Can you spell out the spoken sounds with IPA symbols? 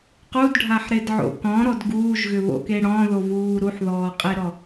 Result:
qudɖʱaħɾedʕo̰ kɔ̃ɾɔd ɡuːʒɣʏβo̰ke ɽɔ̃ðovuː ɾuħðɔːqʼeɾɔ

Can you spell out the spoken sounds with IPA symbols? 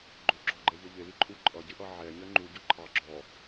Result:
ɡ͡ǃʊ ɡ͡ǁɔɡ͡ǃɛʎəʎɪ liǃʼu ǃʼʌɟɪʔʌ ʕɛɲɜ ŋ͡ǃuɟʊ ǃʰɑ ɡ͡ǁɔ

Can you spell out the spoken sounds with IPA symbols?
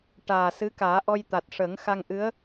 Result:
ʈaː˨˩ sɨ˧˥kaː˨˩˦ ʔɔ˧jt̪a˨˩t̚ ʂə˨˩˦ŋxa˧ŋʔɨ˧˥ə̯

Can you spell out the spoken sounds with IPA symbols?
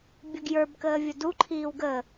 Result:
bʲəɡjə˞b kəːvʲədu ǃʰiːwɡə

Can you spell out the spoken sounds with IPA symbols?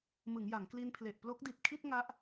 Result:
mɯ˩˦ŋja˩˦ŋkli˧npʰle˨˩ʔ plo˦˥k̚di˨˩t̚kʰi˥˩t̚ ŋa˦˥ʔ

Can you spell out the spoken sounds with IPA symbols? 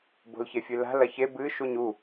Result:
bo̤lçefʲɨla̤ lɐçe bɨ ʃuɲu

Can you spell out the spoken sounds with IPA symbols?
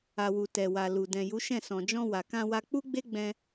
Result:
a˨wu˨ tɛ˨wa˨lu˨ dɛ̃˨ju˨˦ʃɛ̃˦˨ sɔ̃˨d͡ʒɔ̃˧ wa˨kã˧wa˧ k͡pu˦ɡ͡be˦ ɡ͡bɛ̃˧

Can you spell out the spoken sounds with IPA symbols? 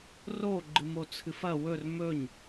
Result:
ro ɡ͡ǃɨmot͡sʰɨfɐ wɵr mɵɲ

